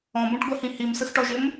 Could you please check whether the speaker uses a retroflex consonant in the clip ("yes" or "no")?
yes